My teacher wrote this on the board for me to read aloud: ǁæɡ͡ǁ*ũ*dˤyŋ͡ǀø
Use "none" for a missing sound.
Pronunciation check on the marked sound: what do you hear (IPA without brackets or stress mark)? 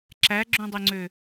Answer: ũ